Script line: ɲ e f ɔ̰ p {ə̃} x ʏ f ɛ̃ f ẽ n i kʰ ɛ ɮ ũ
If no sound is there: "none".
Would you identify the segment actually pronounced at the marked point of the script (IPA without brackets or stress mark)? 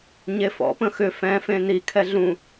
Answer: ə̃